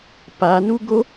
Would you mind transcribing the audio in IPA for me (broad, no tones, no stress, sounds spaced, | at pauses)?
p a n u ɡ o